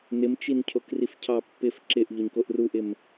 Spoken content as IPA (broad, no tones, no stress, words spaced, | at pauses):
nɪmt͡ʃin cʰokrifcʰɑ pːɪf ǁɪʔ ʎoɲkoʔruʔɪm